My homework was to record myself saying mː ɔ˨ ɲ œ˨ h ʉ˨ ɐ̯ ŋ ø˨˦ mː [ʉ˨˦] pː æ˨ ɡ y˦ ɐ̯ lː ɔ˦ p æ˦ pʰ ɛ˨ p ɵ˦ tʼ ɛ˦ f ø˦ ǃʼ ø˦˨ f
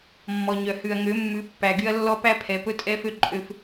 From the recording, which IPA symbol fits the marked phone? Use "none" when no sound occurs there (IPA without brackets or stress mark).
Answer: ʉ˨˦